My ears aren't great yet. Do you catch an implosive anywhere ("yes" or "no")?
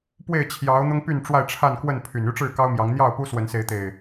no